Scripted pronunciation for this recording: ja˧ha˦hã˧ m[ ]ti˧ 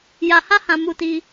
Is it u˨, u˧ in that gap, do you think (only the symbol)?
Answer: u˧